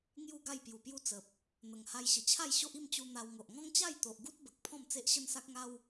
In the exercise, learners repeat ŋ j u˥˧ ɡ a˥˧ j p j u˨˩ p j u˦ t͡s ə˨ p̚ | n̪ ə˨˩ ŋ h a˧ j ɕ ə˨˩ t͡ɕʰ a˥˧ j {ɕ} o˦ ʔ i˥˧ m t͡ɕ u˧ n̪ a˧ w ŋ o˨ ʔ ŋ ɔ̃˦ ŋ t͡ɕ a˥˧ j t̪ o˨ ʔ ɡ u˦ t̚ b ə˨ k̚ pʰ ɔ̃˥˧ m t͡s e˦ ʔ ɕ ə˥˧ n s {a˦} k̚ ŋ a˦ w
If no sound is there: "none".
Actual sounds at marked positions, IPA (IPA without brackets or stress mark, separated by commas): ɕ, a˦